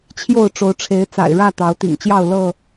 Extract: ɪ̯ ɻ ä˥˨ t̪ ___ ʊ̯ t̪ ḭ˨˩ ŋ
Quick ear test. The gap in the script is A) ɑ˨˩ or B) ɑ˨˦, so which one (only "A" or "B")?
B